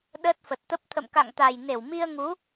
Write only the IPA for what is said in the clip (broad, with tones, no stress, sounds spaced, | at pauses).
ɗ əː˦˥ t̚ f ə˨˩ t̚ t̪ ə˦˥ p̚ t̪ʰ ə̰˧˨ m k a̰˧˨ ŋ t̪ a˨˩ j n e˧˩ w m i˧ ə̯ ŋ u˨˦